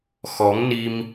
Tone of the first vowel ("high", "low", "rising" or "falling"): rising